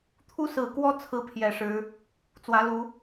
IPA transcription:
t̪ʰ u˦ s ɹ̩˨˩ k w ɔ˦ t͡sʰ ɹ̩˦ pʰ j ɛ˨˩ ʂ ɻ̩˨˦ | t͡s w ä˨˦ l u˨˦

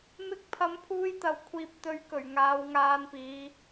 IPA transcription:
m ɪ˧ k̚ pʰ ɐ˨˥ m pʰ uː˧ j t̪ ɐ˨ w kʷʰ iː˨ p̚ t̪ ɵ˨˧ ɥ k ɵ˨˩ ɥ ŋ aː˨˧ w ŋ aː˧ n p iː˨˧

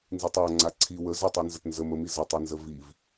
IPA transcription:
n z i tˤ a ŋ͡ǀ a ǀʰ i w ə z ə tˤ i n z ə t n z ə m ə m i z ə tˤ a n z ə v i v

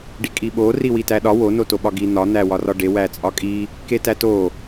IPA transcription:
ɖ i kʼ i ɓ o r i w i t æ ɗ ɒ w o n o t o ɓ ɒ ɡ i n̪ ɒ n̪ æ w ɒ r ɒ ɖ e w æ t͡sʼ ɒ kʼ i | k e t æ t o

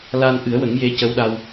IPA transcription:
l aː˧ n ʔ ɨ˨˩˦ ə̯ w ə˨˩˦ ŋ j e˧˥ c ə˧˥ w ɗ a˧ w

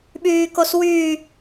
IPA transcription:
ɓ yː k o s w yː

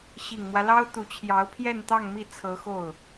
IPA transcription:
ɕ i˨˩ ŋ m w ä˦ l ɑ˥ ʊ̯ t̪ u˧˥ t͡ɕʰ j ɑ˧˥ ʊ̯ pʰ j ɛ˥˧ n t̪ ɑ˥˧ ŋ m i˥˩ t͡sʰ ɤ˧˥ x o˥˩ ʊ̯

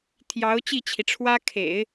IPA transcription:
t̪ʰ j ɑ˧˥ ʊ̯ t͡ɕ i˥˩ t͡ɕʰ i˩ ʈ͡ʂʰ w ä˥ kʰ ḛ˨˩˦ ɪ̯

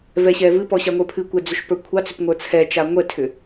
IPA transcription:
v ɛ ɕ ɛ v ɨ p ɔ ɕ a ŋʷ ə˞ pʰ ɨ kʷ ɛ d͡z ʏ ʃ p ə˞ kʷʰ ɑ t͡s ʏ p ŋʷ ə˞ t͡sʰ ɛ t͡ʃ a ŋʷ ɛ tʰ ʏ

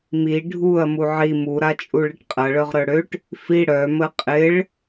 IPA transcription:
m i ɖʱ u ɐ̯ m u ʕ i m u ɾ a t͡ʃʼ u ɭ ɪ ʈ qʼ ɐ ɭ œ ʁ ɾ œ ɽ ø ʈ | f i ɽ œ m ə qʼ ɪ ɭ

